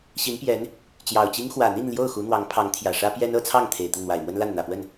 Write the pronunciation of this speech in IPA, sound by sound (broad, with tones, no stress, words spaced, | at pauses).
ɕi˧˥npjɛ˧˥n | t͡ɕjɑ˨˩ʊ̯t͡ɕi˥ŋ xwä˨˩n̪i˥˧n ljo˥˩ʊ̯ xu˧˥n̪wɑ˧˥ŋpʰɑ˧˥ŋ t̪ʰjä˨˩ʂä˥ pjɛ˥nɤ˥ t͡sʰɑ˥˩ŋt̪ʰe˨˩ɪ̯ t̪ə˥˩nn̪wa˨˩ɪ̯mwə˥nla˥˩n n̪ä˨˩pwə˥˩n